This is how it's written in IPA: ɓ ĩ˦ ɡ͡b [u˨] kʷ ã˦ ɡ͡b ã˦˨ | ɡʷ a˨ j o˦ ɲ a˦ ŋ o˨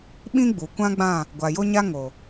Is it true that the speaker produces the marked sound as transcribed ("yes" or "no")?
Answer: yes